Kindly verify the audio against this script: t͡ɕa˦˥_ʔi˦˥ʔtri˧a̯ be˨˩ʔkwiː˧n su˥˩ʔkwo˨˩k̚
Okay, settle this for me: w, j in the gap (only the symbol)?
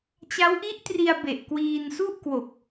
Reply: w